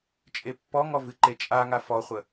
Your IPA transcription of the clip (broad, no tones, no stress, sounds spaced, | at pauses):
t͡ʃʼ e pː ɔ ŋ ɔ v ɨ ǃ e t͡ʃʼ a ŋ a f ɔ χʷ ə